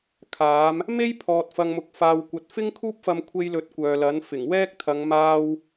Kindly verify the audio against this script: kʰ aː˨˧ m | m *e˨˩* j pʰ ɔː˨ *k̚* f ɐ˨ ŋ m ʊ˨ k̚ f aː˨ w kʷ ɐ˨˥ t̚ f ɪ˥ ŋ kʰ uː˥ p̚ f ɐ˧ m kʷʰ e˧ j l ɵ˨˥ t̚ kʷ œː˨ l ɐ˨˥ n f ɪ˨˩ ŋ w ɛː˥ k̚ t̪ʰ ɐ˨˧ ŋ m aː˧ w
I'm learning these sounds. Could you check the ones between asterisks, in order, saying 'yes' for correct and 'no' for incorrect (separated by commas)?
no, no